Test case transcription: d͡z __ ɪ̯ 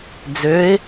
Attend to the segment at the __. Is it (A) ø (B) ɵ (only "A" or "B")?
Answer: A